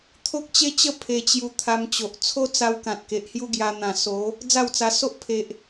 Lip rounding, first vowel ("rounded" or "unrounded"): rounded